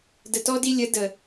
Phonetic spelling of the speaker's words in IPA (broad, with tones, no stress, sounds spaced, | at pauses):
d ə˧ t ɔ˦ d i˦ lʲ ə˨˦ d ə˨